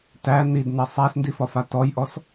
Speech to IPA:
t æ n i d n ɛ sˤ æ s n d i f ɒ f a t ɔ j ʔ ɔ s

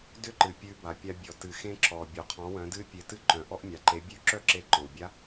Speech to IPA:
d ʏ˧˥ ǃ ɨ˩ pʲ ʉ˩˧ b a˩ pʲ a˧ bʲ ɔ˩ t ɨ˩ x ẽ˧ ǁ ɔ˩ bʲ ɔ˩ qʰ ɔ̃˩˧ w œ̃˩˧ d ɨ˧˥ pʲ e˩˧ t ɨ˧ ǃ œ̃˩ ʔ ɔ˧ ʔ mʲ a˩ ǃ e˩˧ bʲ ʉ˧˥ ǁ œ˥ ǁ e˧ ǃ ɔ̃˩ w bʲ a˧˥

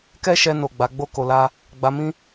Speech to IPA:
k ɛ˦ ʃ ɛ˧ n o˨ ɡ͡b a˨˦ ɡ͡b o˦ k o˧ l a˦ | ɡ͡b a˧ m ĩ˦

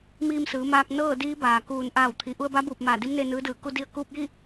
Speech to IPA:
m iː˧ m s ɯː˩˧ m aː˧ k̚ n ɤː˥˨ d iː˧˥ b aː˩ k uː˧˩ n ʔ aː˧˩ w t̪ʰ i˩ ʔ u˧ ə̯ b a˧˥ b uː˧˩ p̚ m aː˧˩ d i˧˥ m n e˧ n ɯː˧˥ d ɯː˧˩ k u˧ d i˧ ə̯ k uː˧ p̚ j i˥˨

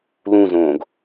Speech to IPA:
l ũ z õː ɡ

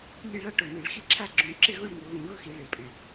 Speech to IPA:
lʲ e˥˨ ɭ a˥˨ ʈ o˨˩ n i˧˩˧ ɭ x i˥˨ ǁʰ a˥˨ ɡ͡ǁ ũ˧˩˧ ǁ ɪ˥˨ ɣ o˥˨ ɭ ŋ o˧˩˧ ɣ ũ˧˩˧ ɣ ʊ˥˨ x i˧˩˧ ɭ e˨˩ pʼ ɛ̃˨˩

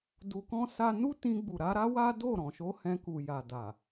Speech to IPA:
d u˧ k ɔ̃˦ s a˦ n u˦ t ĩ˧ ɡ͡b u˨ ɾ a˨˦ ɾ a˦ w a˦ d o˦˨ ɾ ɔ̃˨ ʃ o˧ h ɛ̃˧ k u˨ j a˨ d a˨

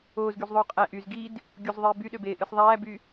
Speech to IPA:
oː z ɡ y z ðˤ oː qʼ æ ʔ y z ɡ i d | ɡʲ u z ðˤ eː b y ɗ ø b eː ʔ ɯ s ðˤ æː b y

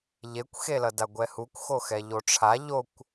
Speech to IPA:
ʎ e kʷ x e l ʌ d a ɡʷ ɛ h u kʷ x o x ɛ ʎ o ʈ͡ʂʰ a ʎ o kʷ

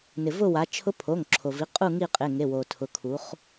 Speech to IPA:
n ɪ˩ v ʊ˦˨ w a˩˧ t͡ʃʰ ʊ˧˥ pʰ o˩˧˩ ŋ ǁʰ o˩ v i˩˧˩ qʼ u˦˨ ŋ i˦˨ qʼ ɪ˩˧˩ ŋ e˩˧˩ w o˩ tʰ ʊ˩˧ kʰ u˩˧ χ

